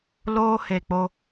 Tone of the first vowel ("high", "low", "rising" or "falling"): high